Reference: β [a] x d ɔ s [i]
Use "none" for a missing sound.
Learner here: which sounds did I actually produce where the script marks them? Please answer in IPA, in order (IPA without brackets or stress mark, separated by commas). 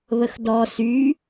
ə, y